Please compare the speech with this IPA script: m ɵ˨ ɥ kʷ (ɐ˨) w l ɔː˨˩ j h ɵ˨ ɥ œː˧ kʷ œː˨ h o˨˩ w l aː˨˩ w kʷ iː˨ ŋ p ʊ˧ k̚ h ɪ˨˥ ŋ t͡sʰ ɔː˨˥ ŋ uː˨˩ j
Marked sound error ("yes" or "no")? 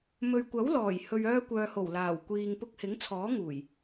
yes